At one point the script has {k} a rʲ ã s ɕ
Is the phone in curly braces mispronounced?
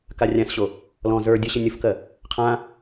no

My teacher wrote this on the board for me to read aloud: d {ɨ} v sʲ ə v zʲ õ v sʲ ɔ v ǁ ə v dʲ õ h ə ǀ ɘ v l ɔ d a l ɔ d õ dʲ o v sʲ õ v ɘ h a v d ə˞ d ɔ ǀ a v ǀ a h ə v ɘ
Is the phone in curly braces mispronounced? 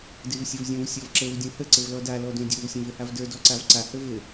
no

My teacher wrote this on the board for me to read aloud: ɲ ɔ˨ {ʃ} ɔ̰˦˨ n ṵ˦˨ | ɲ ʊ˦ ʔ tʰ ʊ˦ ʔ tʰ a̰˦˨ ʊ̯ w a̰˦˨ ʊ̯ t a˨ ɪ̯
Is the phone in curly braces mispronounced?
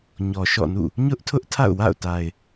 no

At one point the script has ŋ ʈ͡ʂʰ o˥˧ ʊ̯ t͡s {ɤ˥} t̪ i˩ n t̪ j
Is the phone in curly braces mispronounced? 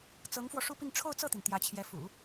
yes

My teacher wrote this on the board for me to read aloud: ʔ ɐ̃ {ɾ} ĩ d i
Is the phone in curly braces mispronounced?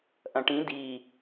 yes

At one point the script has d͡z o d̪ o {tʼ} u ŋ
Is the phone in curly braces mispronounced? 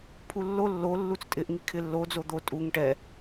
no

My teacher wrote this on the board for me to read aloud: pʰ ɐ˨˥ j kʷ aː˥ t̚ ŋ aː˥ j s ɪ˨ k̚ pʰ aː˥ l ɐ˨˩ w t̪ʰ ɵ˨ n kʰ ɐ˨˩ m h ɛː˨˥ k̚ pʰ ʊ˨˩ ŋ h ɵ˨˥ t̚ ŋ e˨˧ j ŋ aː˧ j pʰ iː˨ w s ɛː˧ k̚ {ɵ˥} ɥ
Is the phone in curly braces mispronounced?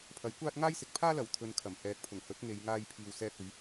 yes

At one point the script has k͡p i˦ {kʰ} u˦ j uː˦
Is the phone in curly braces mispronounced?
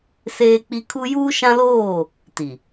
no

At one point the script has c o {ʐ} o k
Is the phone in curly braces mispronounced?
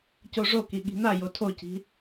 no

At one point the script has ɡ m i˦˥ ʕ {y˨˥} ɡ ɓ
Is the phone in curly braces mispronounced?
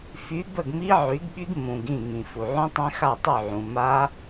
no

